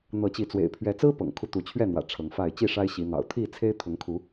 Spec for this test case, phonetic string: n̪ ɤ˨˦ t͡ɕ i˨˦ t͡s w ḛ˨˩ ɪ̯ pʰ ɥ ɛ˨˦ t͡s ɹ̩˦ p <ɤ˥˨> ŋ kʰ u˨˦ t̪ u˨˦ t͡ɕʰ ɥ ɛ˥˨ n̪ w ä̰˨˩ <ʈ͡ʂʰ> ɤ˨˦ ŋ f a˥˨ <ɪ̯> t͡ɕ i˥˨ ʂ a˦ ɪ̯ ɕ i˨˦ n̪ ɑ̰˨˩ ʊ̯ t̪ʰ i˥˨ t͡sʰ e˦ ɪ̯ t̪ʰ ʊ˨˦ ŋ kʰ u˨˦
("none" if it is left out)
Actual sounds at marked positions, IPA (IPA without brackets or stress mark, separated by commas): ɤ̰˨˩, ʈ͡ʂʰ, ɪ̯